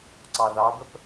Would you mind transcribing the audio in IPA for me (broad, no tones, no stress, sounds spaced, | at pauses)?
ǀ ɑ ð ɑ b ə p